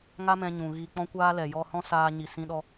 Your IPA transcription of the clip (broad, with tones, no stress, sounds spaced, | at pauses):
ŋ a˦ m ɛ̃˧ ɲ ũ˨ ɣ i˧ k͡p ɔ̃˦ kʷ aː˦ l ɛ˨ j ɔ˧ h ɔ̃˦ s aː˧ ɲ i˨ s ĩ˧ ɗ ɔ˧